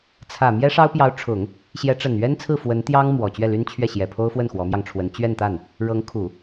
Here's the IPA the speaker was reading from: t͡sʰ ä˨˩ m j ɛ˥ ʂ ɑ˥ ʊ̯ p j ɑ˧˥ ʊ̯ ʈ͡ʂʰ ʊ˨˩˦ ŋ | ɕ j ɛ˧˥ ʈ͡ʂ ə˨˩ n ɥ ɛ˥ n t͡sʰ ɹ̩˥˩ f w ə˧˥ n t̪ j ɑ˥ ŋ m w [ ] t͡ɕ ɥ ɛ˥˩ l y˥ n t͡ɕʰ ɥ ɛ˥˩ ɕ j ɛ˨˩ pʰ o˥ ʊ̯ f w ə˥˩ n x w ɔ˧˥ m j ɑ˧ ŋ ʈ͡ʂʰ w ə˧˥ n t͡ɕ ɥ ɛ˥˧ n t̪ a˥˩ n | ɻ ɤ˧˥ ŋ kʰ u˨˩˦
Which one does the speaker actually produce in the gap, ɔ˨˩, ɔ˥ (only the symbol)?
ɔ˨˩